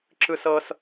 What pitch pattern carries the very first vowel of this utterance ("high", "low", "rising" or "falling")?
high